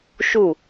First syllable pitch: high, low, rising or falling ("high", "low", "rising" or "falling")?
falling